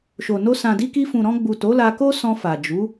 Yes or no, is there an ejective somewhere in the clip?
no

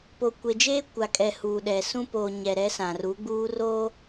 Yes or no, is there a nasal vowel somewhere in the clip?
yes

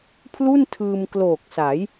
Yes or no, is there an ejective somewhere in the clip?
no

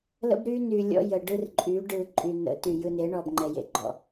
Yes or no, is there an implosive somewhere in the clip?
no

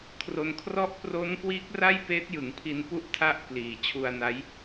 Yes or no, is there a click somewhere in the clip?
no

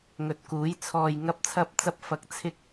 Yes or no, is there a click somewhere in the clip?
no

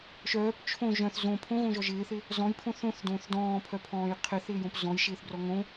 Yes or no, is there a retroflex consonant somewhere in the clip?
no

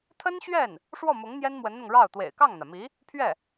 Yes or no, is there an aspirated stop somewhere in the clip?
yes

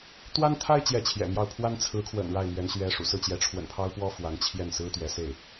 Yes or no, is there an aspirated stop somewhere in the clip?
yes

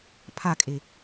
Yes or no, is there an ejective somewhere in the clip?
yes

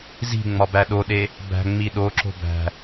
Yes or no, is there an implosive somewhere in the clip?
yes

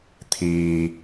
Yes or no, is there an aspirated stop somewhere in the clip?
yes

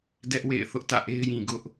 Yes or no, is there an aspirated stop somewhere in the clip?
no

